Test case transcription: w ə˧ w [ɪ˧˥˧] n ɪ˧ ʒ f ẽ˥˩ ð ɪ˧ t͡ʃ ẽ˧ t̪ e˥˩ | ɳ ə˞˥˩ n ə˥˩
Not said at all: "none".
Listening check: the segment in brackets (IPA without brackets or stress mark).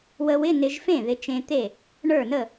ɪ˧˥˧